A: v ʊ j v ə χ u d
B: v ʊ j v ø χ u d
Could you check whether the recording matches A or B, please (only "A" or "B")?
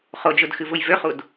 B